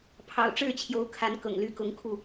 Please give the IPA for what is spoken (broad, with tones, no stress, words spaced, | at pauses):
pʰɑ̰˨˩ʊ̯ʈ͡ʂɻ̩˥˨t͡ɕʰjo˨˦ʊ̯ kʰa˨˦nkɤ̰˨˩ŋly˨˦ kʊ˨˦ŋkʰu˥˨